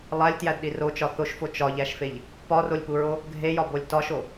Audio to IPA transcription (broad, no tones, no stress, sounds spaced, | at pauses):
lˠ æ lʲ t j æ d ɗ i r o t͡ʃ ɒ θ o ʃ f o t͡ʃ ɒ ʎ æ ʃ f e ʎ | p ɒ r o lʲ p u ɹ o | ɡʱ e j ɒ b o lʲ t ɒ ʃ o